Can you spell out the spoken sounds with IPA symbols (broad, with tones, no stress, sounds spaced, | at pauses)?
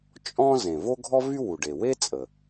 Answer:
t͡ʃʼ ɔ̃˥ z ẽ˩ v o˥ ɡʱ ɔ˥ v y˥ w u˩ ɖ e˩ w e˥ t͡sʼ ə˩